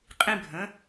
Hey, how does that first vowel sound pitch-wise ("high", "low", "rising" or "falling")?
high